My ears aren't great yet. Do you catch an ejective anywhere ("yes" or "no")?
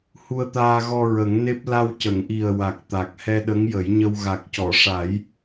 no